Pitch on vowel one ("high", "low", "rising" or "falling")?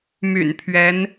low